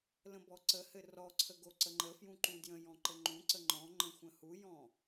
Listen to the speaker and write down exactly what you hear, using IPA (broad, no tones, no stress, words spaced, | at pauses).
lə̃bɔǀəhɘ rɔǀʰə ɡoǀəŋ͡ǃəfjũ ǃũdjə̃jɔ̃ ǃɘŋ͡ǃũǀə ŋ͡ǃɔ̃ ŋ͡ǃə̃xʷə̃hujɔ̃